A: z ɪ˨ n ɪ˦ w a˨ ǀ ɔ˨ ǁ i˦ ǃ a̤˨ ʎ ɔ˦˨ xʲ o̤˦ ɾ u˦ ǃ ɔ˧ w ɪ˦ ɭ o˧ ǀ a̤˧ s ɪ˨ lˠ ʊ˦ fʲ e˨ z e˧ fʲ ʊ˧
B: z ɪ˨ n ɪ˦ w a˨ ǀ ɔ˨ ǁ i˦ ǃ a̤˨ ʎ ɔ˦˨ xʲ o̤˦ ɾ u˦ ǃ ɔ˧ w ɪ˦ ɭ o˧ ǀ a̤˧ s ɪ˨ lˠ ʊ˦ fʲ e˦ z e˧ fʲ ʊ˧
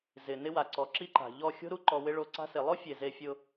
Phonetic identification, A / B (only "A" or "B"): A